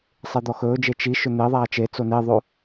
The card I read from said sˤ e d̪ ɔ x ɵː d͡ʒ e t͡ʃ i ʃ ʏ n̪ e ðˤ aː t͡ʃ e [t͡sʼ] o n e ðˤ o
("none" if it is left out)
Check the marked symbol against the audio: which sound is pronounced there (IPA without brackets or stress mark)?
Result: t͡s